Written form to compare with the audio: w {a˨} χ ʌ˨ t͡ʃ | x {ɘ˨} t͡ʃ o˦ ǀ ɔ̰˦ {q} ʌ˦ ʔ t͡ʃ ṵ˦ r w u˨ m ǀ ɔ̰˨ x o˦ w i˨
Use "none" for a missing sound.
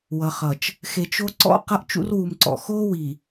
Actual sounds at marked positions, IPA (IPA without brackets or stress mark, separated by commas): ʌ˨, e˨, q